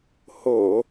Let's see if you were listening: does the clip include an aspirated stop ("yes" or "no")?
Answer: no